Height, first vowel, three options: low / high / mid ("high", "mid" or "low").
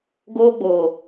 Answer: mid